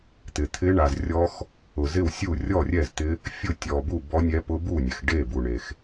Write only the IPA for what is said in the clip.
t̪ɪ˨ t̪ʰɪ˦˥ ɳa˨zrʲɔ˦˥x | ʊ˨zɪ˥˨wsʲu˥˨ rʲɔ˥˨rʲɛ˥˨zt̪ɪ˦˥ | fʲʊ˥˨tʲɔ˨ bu˥˨bɔ˦˥nʲɛ˦˥ pʊ˦˥bu˥˨nʲɛ˨xɖe˥˨ bu˨ɳe˨x

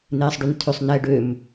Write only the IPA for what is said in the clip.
n̪eːsˤɖʉntʰøsˤ nɛːɖøm

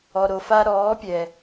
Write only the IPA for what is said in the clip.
ɔ˨ɾo˨fa˧ ɾɔː˨˦pʲɛ˨

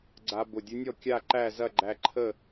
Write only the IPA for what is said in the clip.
ɡ͡ǀa˧ bʊ˨˩dʲʊ˧˥nʲɔ˥˨ kʲa˥˨ǃæ˥˨ zɐ˥˨ɡ͡ǃæ˧ǃʰə˥˨

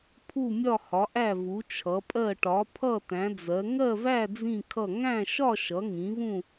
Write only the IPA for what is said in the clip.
pʰu˥˧mʲɒ˥˧hɒ˨˦ ʔæ˥˧vu˨˦t͡ʃʰʌ˨˦pʼɜ˥˧ ʈɒ˨˦pʰʌ˥˧ tæ̃˨˦d͡zɜ˨˦ ŋɜ˥˧væ˥˧ d͡zĩ˥˧kʰʌ˥˧ ŋæ̃˥˧ʃɒ˥˧ ʃʌ˨˦ŋĩ˨˦vũ˥˧

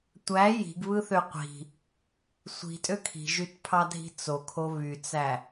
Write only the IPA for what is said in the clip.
tʷæ ji̤ɡβɯθø qʷi̤ | sʷi̤tʼø kʰi̤ʒytpʰɑdʱi̤ t͡sokʰo βyt͡sæ

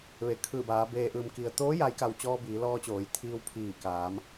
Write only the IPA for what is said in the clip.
ʋe˩kʰɯː˧˩baː˩˧ beː˩ʔɯː˩mki˩ə̯t̪oː˧˥ ja˧˥jka˧w t͡ɕɔː˧biː˩˧lɔː˧t͡ɕoː˩˧j t̪ʰiː˧wpʰiː˧˩kaː˩˧m

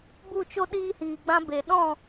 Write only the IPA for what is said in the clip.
bu˦˨t͡ʃo˦ ɗiː˦hiː˨ɡ͡bã˦be˨ ɗɔ̃˦˨

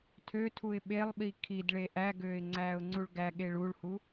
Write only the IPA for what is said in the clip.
tʰøtʰuɪ̯ ɓelˠɓi kʰidɭe ʔæɡøːɪ̯ ŋ͡ǀæːʊ̯ŋ͡ǀuɭɡæɠe ɭuɭhu

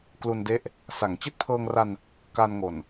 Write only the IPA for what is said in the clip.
klu˧nde˦˥ʔ | sa˩˦ŋ t͡ɕi˦˥t̚pʰɤː˧ŋra˧n | ka˧nŋo˨˩n

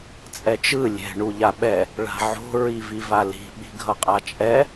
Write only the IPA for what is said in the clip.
t͡sʼɛt͡ʃɯ lʲɛ̤ ɳuʎaɓɛ | ɭa̤ʕo̤ ɹivivali̤ ɓi̤ɡʱʌqʼat͡ʃʼɛ

